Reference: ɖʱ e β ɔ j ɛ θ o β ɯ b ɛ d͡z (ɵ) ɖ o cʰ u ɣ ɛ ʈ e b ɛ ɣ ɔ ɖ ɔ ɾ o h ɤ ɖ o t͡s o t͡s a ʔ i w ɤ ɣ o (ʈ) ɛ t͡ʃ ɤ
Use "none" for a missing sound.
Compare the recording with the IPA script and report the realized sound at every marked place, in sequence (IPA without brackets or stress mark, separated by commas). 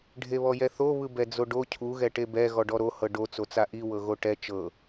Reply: o, ʈ